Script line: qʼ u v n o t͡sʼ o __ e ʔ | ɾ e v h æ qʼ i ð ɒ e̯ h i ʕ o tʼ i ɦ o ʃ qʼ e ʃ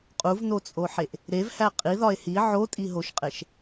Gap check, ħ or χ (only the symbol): ħ